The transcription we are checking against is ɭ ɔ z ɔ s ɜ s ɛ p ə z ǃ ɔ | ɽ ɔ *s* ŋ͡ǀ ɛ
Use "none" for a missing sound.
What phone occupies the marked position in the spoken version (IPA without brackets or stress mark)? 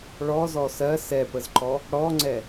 none